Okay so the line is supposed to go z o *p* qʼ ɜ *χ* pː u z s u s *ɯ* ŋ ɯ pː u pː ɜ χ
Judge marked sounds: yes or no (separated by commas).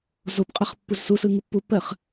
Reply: yes, yes, yes